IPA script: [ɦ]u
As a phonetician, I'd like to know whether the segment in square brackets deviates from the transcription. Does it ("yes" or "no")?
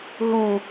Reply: no